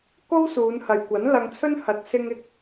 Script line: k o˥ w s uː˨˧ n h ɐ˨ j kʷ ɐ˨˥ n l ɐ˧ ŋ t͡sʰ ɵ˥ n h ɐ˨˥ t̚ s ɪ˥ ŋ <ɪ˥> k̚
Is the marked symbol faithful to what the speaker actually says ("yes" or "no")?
yes